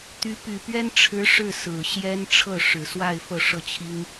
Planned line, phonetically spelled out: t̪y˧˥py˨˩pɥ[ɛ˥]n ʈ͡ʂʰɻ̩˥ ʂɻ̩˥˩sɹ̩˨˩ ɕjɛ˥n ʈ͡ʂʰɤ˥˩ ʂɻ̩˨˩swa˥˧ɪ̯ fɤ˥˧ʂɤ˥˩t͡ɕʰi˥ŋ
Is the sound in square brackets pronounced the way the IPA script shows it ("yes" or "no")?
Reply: yes